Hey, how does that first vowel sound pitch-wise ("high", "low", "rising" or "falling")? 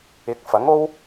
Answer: rising